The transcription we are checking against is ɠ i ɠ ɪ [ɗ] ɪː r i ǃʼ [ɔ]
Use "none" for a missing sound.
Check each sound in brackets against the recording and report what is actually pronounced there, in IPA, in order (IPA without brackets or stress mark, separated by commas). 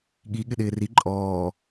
ɗ, ɔː